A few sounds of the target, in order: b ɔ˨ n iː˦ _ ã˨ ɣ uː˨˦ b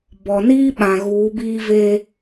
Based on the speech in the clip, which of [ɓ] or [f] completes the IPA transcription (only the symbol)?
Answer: ɓ